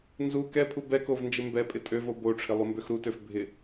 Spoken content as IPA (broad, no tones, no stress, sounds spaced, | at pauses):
n z u k ɛ pʰ u b ɛ k o v n d͡ʒ ɪ m b ɛ pʼ ɪ tʼ ø v o b o ʈ͡ʂʰ ɪ lˠ u m b ø x ɾ u t ø f bʱ ɪ